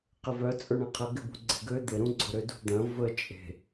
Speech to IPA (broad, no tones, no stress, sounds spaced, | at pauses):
q ɪ v œ t͡sʼ ʊ ɳ ɐ̃ qʰ ɐ ɡ ɪ b ṳ ɡ͡ǀ e̤ ɡ ø d̪ ɪ ɾ ũ ɡ͡ǀ ʊ ɾ ʏ d ṳ d̪ ɐ̃ v ə t͡ʃʼ e̤